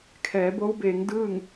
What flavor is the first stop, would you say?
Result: aspirated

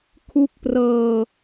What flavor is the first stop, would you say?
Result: aspirated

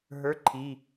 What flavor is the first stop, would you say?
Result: click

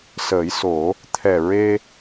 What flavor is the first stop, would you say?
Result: aspirated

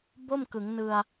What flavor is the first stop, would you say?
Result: plain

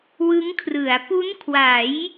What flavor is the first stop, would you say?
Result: aspirated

